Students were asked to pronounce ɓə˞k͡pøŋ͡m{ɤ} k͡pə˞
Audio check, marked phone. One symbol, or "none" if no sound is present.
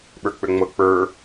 ɤ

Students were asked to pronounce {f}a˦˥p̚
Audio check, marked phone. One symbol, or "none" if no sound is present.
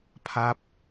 pʰ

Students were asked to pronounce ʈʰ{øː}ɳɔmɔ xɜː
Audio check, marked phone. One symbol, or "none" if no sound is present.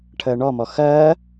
əː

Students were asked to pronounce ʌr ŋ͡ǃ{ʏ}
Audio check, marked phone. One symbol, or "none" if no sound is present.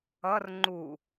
u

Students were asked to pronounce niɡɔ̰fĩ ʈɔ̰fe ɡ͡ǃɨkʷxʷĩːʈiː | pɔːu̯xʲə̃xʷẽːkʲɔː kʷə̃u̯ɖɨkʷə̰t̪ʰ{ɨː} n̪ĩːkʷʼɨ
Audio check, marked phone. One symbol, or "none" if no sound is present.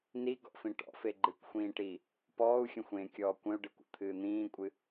ɨː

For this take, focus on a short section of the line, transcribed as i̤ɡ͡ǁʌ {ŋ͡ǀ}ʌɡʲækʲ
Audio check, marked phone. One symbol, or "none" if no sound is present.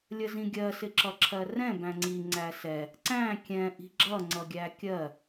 ŋ͡ǀ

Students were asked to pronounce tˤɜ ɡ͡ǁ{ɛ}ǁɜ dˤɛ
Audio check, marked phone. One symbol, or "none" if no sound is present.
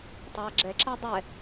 ɛ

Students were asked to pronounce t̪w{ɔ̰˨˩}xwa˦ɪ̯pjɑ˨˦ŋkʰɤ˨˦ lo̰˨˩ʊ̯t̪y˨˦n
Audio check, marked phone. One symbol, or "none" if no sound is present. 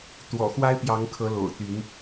ɔ̰˨˩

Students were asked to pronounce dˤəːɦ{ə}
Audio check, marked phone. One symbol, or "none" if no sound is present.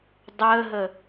ə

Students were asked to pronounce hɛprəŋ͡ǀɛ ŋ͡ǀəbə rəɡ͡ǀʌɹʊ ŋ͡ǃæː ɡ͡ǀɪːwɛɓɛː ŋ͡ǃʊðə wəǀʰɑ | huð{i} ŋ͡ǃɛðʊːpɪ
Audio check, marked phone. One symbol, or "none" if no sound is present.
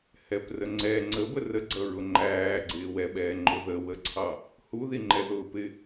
i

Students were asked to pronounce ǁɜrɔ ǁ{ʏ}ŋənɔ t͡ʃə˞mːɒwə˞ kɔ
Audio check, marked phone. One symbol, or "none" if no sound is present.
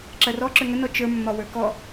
ʏ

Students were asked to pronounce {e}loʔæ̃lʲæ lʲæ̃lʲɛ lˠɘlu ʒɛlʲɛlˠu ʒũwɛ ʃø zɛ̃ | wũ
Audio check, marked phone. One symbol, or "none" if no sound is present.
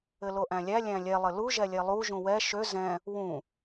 ɘ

